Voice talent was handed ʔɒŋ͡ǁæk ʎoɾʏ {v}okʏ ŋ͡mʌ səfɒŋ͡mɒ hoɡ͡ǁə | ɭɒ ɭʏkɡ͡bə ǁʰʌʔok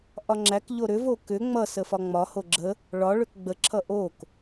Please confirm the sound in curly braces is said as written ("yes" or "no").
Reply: yes